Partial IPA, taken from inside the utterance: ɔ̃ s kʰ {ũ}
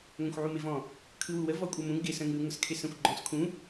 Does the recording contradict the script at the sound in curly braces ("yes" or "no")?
no